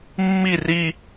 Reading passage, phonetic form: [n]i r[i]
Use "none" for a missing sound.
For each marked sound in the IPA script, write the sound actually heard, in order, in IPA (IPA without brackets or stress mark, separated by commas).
mː, i